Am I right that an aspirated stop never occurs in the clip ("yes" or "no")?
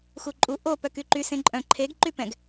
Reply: no